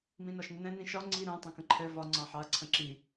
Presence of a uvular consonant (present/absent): absent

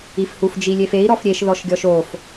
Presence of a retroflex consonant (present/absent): absent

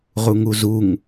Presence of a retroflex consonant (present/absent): absent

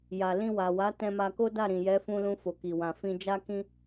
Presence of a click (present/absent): absent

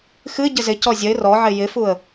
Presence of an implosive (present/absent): absent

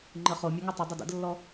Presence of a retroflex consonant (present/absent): absent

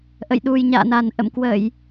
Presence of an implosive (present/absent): present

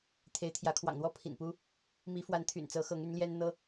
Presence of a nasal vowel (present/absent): absent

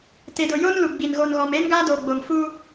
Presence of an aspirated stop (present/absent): absent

